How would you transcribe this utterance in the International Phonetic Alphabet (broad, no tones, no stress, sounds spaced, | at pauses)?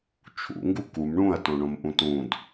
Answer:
t͡ʃʰ ṵ ŋ ɡ u k u m ɳ ũ ɐ̯ t õ ɳ õ m ʔ ũ t ũ d